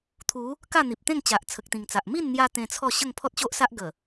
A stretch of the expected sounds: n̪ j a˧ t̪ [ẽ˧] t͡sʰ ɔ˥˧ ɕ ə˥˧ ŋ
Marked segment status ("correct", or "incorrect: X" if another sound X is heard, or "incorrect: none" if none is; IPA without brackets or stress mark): correct